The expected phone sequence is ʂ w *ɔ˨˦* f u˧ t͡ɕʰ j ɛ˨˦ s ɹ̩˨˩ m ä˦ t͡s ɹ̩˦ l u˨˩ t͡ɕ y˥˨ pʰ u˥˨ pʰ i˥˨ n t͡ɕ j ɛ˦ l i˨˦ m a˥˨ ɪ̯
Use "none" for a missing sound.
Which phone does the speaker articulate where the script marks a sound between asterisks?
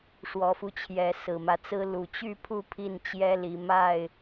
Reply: ɔ˨˦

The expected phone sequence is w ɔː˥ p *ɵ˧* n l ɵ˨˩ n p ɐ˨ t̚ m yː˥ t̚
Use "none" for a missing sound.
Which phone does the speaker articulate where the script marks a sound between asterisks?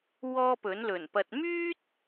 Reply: ɵ˨˥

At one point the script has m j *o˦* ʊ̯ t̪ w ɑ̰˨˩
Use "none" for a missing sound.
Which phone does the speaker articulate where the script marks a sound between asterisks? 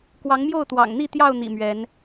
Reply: o˥˨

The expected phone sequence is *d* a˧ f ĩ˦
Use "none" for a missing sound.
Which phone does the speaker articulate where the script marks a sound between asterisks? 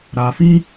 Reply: ɾ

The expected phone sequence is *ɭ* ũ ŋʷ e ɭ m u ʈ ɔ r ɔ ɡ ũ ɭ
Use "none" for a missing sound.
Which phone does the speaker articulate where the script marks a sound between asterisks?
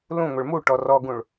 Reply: l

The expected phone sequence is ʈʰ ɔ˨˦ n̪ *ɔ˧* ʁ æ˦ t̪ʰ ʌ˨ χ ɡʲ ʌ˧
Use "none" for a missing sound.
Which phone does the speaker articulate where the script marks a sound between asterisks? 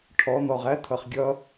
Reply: ɔ˨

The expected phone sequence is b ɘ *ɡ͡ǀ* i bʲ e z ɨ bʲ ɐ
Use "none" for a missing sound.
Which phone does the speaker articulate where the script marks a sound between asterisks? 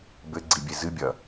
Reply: ɡ͡ǀ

